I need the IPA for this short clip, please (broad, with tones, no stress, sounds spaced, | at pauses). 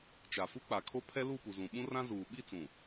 t͡ʃ a˨ f u˦ k͡p a˨ kʰ o˦ pʰ ɛ˦ l u˦˨ p u˨ z ũ˨ ɓ ũ˦ r ã˦ z uː˨ ɓ i˦˨ t͡s ũ˨